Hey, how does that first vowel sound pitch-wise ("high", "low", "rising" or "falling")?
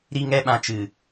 high